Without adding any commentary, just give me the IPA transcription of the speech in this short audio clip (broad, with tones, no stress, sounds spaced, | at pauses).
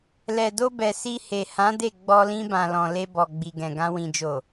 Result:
l ɛ˨ d o˧ b ɛ˨ s i˧ h e˨ h ã˨˦ d e˦˨ ɡ͡b ɔ˧ l ĩ˧ b ã˨ l ɔ̃˨ l e˧ b ɔ˨ ɡ͡b i˨ ɡ ɛ̃˨ ɡ ã˧ w ĩ˨ d͡ʒ o˨